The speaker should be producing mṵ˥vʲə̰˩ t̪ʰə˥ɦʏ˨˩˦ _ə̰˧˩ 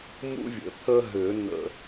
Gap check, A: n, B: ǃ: A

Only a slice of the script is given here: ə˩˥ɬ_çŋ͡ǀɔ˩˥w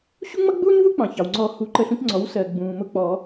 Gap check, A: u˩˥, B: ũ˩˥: B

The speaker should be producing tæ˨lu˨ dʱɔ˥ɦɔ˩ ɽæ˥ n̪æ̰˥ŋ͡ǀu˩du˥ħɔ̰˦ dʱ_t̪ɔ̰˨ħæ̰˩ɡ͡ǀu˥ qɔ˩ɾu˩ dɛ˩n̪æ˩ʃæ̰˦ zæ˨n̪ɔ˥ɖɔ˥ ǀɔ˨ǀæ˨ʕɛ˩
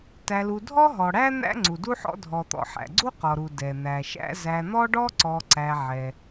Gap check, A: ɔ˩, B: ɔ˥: A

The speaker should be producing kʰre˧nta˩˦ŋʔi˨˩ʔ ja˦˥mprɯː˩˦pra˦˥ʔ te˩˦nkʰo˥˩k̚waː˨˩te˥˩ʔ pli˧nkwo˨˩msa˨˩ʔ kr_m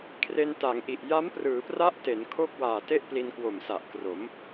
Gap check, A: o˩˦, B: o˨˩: A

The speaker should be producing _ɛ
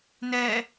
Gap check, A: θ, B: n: B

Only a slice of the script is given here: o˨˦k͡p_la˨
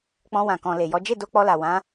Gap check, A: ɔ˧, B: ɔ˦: A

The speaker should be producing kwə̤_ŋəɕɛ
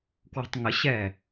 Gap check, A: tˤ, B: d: A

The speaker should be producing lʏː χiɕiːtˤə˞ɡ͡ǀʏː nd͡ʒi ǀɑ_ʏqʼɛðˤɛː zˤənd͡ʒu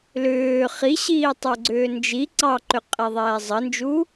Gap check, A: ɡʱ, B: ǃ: B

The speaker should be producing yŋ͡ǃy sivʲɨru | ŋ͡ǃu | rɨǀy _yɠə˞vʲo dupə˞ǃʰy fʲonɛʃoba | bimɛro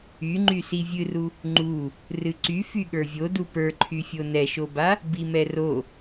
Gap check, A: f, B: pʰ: A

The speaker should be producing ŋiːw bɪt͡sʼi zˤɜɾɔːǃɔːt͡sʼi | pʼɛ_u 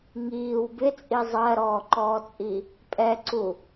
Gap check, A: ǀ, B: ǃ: A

